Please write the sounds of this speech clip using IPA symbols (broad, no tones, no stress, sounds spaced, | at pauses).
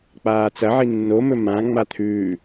k͡p aː t͡s ɐ ʕ i nː o m ɵ m ã ŋ͡m a t̪ʰ ʉː